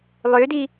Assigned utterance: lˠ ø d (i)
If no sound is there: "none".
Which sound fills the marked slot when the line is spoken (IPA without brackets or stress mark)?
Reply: i